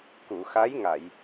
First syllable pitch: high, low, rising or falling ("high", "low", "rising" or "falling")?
low